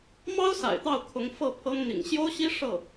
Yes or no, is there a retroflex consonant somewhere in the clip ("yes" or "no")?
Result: yes